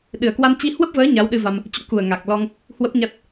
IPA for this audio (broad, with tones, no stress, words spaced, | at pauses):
ɗɨ˨˩ə̯kwa˧n t͡ɕi˧hwə˦˥p̚vəː˨˦ ɲa˨˦wɗɨ˧va˧m | t͡ɕṵ˧˥ku˨˩ə̯ ŋa˨˩k̚lɔ˧ŋ | hwə˦˥p̚ɲa˦˥t̚